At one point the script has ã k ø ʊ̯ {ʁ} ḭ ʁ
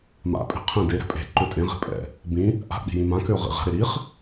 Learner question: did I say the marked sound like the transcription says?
yes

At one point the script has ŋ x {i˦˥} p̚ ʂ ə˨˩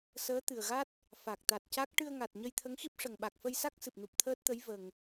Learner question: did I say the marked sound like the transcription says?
yes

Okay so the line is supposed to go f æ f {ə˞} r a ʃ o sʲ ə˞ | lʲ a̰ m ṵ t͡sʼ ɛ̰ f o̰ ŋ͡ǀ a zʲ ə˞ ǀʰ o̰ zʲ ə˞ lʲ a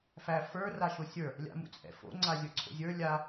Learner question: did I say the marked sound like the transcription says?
yes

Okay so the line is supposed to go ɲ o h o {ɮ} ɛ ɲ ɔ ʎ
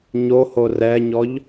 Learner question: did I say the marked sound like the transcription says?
no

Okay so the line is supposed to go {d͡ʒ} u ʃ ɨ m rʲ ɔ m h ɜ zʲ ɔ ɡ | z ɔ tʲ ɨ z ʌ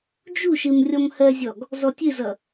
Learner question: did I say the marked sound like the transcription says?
yes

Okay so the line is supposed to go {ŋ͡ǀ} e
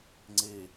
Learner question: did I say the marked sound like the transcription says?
yes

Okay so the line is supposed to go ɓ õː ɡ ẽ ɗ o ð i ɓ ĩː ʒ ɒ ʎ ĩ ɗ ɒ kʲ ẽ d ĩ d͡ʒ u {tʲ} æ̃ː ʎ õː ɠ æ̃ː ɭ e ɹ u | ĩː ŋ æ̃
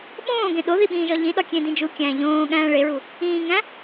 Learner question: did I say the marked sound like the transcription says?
no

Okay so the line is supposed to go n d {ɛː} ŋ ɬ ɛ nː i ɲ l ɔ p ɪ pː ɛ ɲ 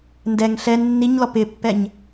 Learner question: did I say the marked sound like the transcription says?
no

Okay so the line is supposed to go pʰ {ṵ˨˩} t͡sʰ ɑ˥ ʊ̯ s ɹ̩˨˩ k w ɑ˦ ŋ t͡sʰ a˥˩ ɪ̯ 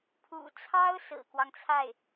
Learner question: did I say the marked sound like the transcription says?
yes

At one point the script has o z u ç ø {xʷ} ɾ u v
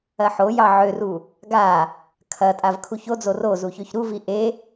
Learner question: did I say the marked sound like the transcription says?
no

